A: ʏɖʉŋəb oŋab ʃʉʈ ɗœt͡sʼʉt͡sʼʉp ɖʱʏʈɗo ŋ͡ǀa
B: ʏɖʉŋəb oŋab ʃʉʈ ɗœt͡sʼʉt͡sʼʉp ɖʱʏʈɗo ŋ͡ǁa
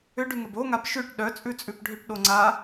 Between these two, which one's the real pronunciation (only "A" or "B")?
A